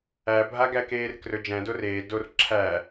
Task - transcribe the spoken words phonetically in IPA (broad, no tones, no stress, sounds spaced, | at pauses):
æ bʱ a ɡ æ k eː r k r ɵ d͡ʒ æ̃ d o r eː d o r ǁʰ æ